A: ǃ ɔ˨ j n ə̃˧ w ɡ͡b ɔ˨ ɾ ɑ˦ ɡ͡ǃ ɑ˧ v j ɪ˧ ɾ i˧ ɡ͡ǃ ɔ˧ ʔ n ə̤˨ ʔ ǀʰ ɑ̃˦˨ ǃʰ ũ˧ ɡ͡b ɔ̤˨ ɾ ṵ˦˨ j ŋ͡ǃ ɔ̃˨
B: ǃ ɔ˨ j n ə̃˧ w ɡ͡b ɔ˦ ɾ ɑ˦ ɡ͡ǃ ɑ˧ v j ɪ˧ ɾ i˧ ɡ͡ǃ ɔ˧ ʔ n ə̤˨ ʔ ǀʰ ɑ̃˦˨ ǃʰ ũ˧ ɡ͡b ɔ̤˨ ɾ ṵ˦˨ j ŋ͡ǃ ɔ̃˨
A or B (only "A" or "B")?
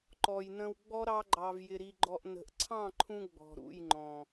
B